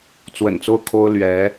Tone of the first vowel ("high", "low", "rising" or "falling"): low